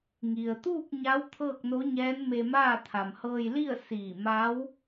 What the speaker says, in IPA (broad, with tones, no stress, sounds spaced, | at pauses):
ŋ i˩ ə̯ t̪ uː˥˨ k̚ ɲ a˧˥ w t̪ʰ ɤː˥˨ k̚ n o˧˥ ɲ ɛː˧˥ n m e˧ m aː˥˨ t̪ʰ a˩ m h ɤː˧ j l i˥˨ ə̯ s iː˧˩ m a˧˥ w